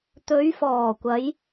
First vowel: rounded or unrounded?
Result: rounded